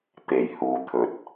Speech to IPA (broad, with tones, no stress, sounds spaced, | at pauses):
t̪ e˨˩ j h uː˨ t̪ʰ ɵ˨ t̚